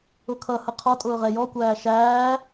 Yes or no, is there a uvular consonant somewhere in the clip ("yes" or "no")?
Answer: yes